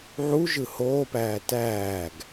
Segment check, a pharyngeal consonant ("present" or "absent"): present